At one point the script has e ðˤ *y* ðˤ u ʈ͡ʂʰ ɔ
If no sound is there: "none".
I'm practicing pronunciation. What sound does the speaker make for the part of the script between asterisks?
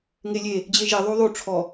u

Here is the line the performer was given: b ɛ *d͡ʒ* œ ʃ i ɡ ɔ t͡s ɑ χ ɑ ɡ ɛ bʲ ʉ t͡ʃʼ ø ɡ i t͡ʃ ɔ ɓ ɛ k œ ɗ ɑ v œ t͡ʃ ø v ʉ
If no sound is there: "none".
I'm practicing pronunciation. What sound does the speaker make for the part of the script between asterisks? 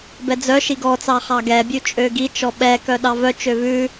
d͡z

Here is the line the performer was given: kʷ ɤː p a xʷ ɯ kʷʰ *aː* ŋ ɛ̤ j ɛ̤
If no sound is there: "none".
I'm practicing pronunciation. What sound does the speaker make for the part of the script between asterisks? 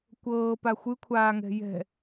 aː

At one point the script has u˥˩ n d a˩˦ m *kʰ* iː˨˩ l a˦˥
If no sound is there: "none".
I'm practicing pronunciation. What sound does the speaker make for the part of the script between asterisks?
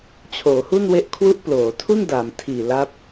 tʰ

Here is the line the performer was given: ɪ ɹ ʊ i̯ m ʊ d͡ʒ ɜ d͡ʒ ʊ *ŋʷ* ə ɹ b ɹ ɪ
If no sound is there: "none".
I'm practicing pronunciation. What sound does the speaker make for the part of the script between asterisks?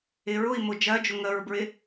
ŋ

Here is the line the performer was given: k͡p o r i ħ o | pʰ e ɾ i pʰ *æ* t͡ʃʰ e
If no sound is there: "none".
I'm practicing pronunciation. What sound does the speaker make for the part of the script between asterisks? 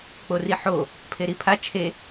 a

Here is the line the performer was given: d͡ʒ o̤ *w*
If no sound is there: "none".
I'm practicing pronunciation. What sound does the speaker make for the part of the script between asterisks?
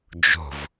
v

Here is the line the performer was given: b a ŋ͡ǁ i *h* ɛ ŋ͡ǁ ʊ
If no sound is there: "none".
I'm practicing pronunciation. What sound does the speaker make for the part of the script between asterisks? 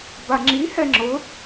h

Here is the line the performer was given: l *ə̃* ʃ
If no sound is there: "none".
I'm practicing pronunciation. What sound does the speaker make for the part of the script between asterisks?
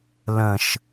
ə̃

